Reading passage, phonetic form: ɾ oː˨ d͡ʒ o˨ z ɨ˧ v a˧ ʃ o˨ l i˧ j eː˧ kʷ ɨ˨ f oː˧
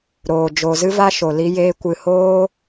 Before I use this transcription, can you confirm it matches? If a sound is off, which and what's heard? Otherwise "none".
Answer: f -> h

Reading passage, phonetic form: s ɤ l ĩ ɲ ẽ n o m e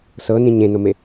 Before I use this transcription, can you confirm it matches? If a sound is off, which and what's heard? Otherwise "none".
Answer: l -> n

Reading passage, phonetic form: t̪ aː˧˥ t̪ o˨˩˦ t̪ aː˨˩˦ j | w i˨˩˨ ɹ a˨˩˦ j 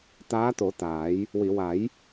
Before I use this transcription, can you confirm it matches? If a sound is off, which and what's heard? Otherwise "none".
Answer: ɹ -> w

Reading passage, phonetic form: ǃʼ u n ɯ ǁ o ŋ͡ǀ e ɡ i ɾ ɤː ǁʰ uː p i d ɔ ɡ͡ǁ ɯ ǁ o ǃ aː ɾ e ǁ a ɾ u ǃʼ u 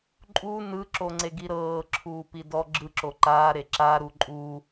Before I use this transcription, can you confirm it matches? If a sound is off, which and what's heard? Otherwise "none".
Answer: none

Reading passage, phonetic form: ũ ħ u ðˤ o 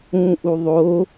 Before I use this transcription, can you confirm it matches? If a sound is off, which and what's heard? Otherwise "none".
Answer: ħ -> ʔ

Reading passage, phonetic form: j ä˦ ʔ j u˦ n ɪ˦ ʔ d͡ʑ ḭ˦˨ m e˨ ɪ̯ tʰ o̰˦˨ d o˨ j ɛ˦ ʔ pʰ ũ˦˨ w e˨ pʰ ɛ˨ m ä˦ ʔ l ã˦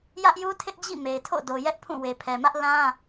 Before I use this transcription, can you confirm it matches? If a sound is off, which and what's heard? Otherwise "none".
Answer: n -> tʰ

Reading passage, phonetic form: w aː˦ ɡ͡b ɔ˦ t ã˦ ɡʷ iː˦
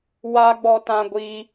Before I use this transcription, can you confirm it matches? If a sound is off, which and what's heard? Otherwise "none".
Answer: none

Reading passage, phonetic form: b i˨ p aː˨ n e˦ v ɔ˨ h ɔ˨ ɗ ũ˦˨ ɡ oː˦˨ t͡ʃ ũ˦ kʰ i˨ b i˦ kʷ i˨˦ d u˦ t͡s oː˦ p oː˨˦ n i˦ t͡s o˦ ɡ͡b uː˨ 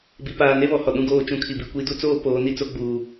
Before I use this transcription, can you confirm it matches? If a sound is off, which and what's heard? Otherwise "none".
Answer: v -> β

